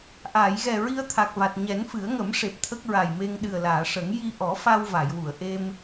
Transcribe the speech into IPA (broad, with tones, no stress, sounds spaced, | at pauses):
ʔ aː˨˩˨ j ɣ ɛ˨˩ ɹ i˧ ə̯ t̪ʰ a˨˩ k̚ v a˨˩ t̚ ɲ ɛ˨˩˦ n f ɨ˨˩˦ ə̯ ŋ ə˨˩˦ m ʂ e˨˩ p̚ t̪ʰ ə˦˥ k̚ ɹ a˨˩ j m e˧ ŋ ɗ ɨ˨˩ ə̯ l aː˨˩˨ ʂ ə˨˩˦ ŋ j i˧ ʔ ɔ˨˩˦ f a˧ w v a˨˩˨ j w u˨˩˨ ə̯ ʔ e˧ m